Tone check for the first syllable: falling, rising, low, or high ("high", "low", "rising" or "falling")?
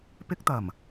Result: high